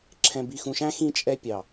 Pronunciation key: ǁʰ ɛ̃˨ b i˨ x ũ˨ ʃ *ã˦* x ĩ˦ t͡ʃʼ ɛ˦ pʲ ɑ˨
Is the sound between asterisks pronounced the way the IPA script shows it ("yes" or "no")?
no